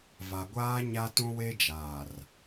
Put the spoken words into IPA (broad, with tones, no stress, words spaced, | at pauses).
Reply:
va˨ɡʷaː˦ ɲa˦tũ˦ we˦d͡ʒaː˨r